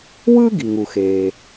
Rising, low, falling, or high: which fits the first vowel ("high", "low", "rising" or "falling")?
high